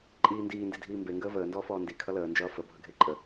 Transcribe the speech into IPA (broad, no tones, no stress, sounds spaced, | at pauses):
ǃʼ iː n d iː n d i dʱ iː m b e ŋ ɡ əː v əː n d ɔː f ɔː n d i kʰ ʌ l əː n d͡ʒ ʌː f ə bʱ ʌ ɡʱ e ǃʼ ə